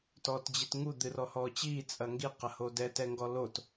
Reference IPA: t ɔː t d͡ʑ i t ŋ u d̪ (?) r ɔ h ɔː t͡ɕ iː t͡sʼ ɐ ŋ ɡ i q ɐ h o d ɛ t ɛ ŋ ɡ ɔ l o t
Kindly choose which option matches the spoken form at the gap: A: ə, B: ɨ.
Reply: B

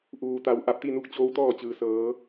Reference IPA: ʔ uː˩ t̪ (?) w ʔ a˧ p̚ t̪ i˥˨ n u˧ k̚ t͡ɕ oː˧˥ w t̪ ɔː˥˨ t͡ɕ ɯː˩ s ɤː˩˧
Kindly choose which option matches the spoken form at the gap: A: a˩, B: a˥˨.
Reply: A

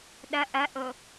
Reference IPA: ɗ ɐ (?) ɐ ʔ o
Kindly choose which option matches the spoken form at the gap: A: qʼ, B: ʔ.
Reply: B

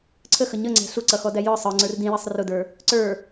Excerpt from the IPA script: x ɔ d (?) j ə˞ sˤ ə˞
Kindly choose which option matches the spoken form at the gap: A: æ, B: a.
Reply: A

